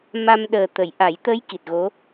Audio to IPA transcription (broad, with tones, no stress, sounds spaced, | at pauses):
m a˧ m ɗ əː˨˩ t̪ ə˨˩˨ j ʔ a˨˩˦ j t̪ ə˧˥ j k i˨˩ t̚ ɣ o˧˥